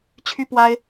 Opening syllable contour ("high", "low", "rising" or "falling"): high